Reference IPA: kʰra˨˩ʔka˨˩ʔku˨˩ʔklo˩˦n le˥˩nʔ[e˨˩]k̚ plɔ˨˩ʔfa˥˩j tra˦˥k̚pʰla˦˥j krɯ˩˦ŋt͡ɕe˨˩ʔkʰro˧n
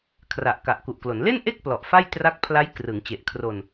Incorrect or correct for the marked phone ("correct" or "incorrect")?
incorrect